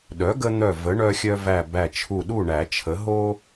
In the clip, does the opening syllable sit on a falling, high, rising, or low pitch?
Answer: rising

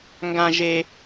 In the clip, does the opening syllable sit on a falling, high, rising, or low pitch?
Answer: high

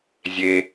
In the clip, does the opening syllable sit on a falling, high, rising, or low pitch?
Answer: low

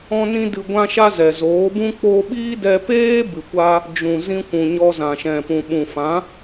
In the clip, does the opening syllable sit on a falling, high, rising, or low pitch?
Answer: high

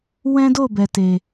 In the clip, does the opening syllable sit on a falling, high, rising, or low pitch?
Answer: high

